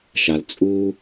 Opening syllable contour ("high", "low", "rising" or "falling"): low